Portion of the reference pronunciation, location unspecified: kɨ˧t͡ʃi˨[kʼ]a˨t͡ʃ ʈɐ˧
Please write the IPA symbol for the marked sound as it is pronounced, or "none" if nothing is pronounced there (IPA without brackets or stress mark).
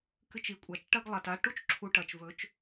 kʷʼ